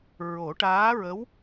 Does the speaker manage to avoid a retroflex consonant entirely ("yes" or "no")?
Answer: no